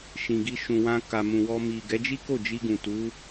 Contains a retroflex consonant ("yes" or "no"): no